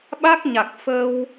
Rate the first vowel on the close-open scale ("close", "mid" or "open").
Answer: open